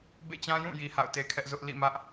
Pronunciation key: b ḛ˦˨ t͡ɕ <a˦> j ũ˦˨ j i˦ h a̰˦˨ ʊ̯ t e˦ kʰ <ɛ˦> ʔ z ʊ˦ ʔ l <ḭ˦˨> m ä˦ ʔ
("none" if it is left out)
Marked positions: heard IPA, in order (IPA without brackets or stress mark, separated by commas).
ã˦, ɛ˦, ḭ˦˨